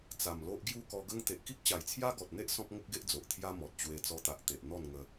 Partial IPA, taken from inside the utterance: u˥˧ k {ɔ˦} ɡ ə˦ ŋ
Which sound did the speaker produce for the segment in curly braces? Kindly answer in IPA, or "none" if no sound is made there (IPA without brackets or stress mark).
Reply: ɔ˧